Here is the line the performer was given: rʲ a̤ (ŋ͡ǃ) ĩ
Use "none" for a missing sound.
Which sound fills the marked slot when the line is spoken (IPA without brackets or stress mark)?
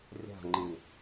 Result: ŋ͡ǃ